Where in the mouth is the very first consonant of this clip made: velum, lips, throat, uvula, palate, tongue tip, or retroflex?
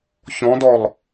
palate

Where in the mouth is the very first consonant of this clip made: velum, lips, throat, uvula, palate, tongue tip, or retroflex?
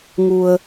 velum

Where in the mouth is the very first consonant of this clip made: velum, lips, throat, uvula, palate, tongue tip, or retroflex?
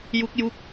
palate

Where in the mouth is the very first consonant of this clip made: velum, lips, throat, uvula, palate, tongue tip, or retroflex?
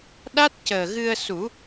tongue tip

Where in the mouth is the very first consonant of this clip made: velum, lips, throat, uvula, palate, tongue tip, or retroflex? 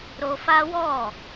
tongue tip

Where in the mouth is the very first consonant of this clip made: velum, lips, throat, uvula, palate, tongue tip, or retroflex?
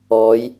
palate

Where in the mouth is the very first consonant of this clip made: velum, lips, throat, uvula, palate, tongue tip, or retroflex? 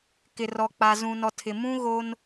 velum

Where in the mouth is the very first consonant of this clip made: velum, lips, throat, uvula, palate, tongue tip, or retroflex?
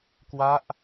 velum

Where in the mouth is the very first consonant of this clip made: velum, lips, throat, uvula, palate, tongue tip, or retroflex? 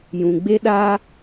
palate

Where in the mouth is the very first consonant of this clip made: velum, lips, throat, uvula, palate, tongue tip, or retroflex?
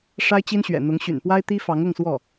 retroflex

